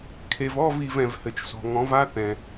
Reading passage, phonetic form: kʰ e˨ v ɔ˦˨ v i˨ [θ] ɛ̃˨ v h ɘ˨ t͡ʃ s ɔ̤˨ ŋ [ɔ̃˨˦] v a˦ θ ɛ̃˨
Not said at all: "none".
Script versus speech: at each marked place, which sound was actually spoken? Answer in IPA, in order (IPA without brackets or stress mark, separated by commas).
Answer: v, ɔ̃˨˦